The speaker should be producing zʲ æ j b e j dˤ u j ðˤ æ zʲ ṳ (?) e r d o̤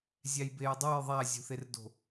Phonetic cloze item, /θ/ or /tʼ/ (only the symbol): θ